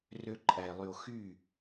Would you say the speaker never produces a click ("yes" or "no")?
no